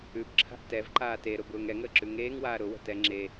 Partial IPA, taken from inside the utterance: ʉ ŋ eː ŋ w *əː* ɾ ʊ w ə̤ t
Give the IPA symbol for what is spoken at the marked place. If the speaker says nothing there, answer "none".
aː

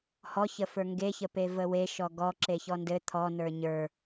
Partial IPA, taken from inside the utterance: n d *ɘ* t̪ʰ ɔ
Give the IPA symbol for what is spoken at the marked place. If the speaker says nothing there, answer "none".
ɘ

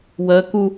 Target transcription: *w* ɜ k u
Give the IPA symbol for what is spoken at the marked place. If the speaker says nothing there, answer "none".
w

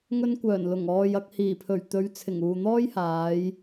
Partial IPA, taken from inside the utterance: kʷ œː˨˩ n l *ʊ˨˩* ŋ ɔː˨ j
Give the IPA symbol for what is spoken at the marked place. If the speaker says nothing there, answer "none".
ʊ˨˩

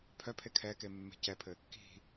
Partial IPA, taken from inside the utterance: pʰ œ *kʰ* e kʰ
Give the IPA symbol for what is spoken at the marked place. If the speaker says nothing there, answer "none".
pʰ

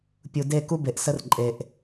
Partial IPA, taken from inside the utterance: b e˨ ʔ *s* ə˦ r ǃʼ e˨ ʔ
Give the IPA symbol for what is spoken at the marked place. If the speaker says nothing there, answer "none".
s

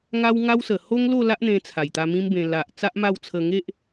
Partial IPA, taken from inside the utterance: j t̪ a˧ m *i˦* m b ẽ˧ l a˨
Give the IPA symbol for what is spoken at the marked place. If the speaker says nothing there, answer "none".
ĩ˦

